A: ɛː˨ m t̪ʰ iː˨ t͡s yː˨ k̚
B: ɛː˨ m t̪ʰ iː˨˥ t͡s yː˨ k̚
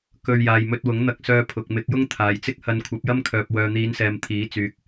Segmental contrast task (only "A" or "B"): B